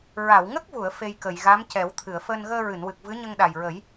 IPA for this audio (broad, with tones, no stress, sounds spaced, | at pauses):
ɹ a˨˩˨ w ŋ ə˦˥ k̚ v u˨˩˨ ə̯ f e˧ j k ə˨˩˨ j ɣ a˧˥ m c ɛ˨˩˦ w t̪ʰ ɨ˨˩˨ ə̯ f əː˧ n ɣ əː˧ ɹ ɨ˨˩˨ n w ɨ˨˩ k̚ v ɨ˧˥ ɲ ə˧ ŋ ɗ a˨˩ j ɹ ə˨˩˦ j